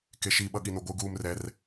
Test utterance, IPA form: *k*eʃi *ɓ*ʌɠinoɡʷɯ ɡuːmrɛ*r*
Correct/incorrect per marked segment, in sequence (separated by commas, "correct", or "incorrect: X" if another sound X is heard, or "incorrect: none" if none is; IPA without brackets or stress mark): correct, correct, correct